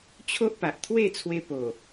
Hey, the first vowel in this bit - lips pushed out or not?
yes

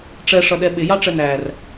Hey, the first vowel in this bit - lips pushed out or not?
no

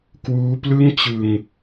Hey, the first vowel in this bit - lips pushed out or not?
yes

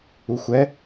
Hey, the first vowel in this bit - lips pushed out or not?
yes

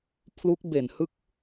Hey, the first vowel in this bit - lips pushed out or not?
yes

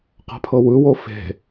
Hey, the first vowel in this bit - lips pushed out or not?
no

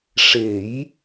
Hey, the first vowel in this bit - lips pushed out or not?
no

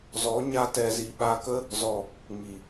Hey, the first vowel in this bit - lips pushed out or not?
yes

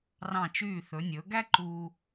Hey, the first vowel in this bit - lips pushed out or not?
no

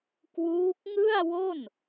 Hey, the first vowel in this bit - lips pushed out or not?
yes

